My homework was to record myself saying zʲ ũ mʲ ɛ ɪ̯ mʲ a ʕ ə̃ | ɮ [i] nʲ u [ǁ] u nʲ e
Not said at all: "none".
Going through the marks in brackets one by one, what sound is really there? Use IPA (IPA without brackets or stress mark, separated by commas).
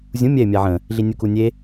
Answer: i, k